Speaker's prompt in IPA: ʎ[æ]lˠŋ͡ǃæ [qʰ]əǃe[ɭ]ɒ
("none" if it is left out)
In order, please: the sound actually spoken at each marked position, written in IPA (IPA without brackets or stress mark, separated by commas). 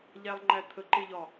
æ, t̪ʰ, ʎ